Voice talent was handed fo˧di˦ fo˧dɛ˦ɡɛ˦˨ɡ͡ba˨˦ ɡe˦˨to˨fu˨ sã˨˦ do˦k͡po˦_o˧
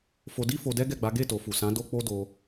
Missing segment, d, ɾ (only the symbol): d